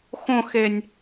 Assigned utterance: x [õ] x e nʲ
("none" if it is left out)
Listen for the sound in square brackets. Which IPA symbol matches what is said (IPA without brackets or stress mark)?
õ